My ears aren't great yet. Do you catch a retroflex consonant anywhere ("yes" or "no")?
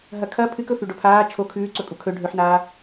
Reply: yes